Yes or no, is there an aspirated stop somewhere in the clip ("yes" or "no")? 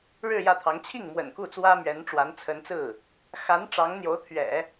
yes